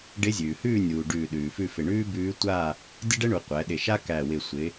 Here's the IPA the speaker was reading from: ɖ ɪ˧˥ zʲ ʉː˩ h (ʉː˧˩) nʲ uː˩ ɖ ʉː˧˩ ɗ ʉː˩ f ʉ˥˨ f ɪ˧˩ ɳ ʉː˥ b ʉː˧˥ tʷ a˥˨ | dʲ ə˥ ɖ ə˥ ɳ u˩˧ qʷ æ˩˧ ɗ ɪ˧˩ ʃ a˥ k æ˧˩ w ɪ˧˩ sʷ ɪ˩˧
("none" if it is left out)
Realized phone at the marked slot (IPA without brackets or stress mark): ʉː˥˨